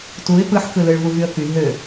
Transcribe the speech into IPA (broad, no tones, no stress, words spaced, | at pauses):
tuɪ̯ pɯħkɯlɯɭ vuvyə̯ky ɦø